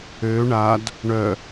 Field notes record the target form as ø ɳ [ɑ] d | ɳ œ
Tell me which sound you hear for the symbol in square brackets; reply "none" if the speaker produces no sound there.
a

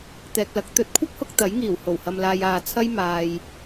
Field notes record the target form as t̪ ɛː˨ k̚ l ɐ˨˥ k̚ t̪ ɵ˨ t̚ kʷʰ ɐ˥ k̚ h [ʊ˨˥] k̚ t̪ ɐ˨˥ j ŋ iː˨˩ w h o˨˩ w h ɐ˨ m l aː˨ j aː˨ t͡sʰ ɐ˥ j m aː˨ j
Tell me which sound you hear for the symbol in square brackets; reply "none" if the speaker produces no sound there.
ʊ˧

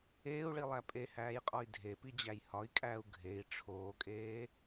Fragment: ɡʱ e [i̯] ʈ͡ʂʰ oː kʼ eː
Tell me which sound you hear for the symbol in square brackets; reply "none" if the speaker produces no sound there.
i̯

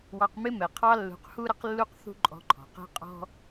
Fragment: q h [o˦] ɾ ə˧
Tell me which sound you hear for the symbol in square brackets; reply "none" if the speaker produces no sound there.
u˦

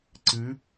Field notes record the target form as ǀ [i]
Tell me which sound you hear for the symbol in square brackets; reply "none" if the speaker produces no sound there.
ɨ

